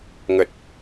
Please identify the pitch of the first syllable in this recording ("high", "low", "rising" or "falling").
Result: low